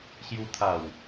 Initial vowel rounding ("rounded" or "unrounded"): rounded